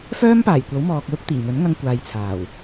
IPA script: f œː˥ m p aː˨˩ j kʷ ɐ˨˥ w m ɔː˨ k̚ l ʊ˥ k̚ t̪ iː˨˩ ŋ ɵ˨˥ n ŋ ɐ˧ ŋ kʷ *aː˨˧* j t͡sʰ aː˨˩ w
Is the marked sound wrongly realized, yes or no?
yes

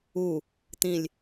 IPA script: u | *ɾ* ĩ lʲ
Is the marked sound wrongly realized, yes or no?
yes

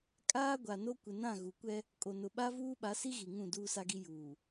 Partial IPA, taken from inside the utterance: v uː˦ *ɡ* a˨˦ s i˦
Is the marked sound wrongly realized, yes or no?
yes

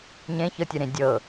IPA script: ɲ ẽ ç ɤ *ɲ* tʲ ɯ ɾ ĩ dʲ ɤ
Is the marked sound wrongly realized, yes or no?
yes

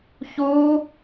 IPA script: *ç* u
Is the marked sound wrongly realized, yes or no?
no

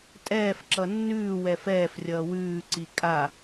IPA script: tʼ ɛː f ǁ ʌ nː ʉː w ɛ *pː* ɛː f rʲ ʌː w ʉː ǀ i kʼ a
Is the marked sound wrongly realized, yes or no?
yes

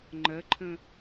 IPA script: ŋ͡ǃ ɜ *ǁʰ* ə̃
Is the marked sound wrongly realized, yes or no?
yes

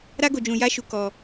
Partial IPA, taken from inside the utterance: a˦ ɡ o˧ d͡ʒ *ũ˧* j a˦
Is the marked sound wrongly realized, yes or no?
no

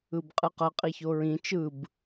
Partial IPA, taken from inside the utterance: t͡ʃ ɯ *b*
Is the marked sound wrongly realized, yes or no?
no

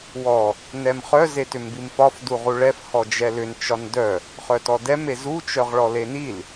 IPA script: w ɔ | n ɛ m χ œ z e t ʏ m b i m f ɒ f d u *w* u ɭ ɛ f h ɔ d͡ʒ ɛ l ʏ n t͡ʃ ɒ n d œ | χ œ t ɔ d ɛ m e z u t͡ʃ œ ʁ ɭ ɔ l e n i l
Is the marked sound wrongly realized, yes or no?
yes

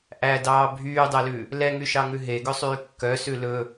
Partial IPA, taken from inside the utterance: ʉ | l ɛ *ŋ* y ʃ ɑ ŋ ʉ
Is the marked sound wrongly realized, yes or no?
no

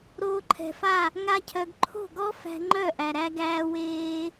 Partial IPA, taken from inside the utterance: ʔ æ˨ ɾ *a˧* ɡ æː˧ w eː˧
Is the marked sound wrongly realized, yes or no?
yes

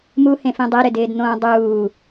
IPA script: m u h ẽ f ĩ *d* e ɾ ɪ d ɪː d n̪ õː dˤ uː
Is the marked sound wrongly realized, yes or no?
yes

